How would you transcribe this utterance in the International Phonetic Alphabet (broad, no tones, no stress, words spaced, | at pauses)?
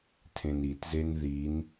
tʰẽnitzen ðin